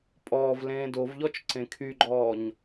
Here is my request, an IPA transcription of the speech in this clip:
pʼ ɔː v l ẽː d o v ʎ ɔ t͡ʃ ǀ ẽ kʰ y ɡ͡ǃ ɔː ɲ

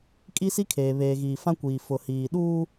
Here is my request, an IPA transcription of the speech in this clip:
kʼ i˦ s i˦ kʰ eː˨ β eː˨ ɣ iː˨ f ã˦ kʷ iː˨ f ʊ˨ h iː˨ ɗ uː˦

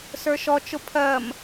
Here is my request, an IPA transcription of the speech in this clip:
s ə˞ ʃ ɔ t͡ʃ ʊ pʰ ɜ m

